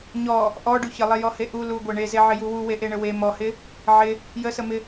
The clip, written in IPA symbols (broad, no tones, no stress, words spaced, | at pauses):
ɲɔ | ʔɔɖu çəlˠejɔhe ʔu luɡʷe ɳezeʕɪju wuweʔeɳə we mɔhɪ | ʕɪ | jəsəmɪ